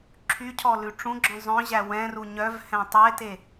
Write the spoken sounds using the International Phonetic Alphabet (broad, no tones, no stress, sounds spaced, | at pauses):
ǁʰ y cʰ ɔ l ʉ ʈ͡ʂ ũ ɡ͡ǁ ɔ̃ zˤ œ̃ ʑ æ w ɛ̃ r u ɲ œ v h ɛ̃ tˤ e t e